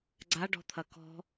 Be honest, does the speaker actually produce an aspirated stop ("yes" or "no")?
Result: yes